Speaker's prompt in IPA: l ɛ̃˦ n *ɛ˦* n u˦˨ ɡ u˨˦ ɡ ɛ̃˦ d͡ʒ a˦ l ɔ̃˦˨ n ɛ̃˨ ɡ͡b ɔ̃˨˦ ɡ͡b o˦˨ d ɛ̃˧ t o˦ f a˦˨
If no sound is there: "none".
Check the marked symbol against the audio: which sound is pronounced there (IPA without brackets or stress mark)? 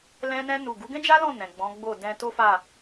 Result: ɛ̃˦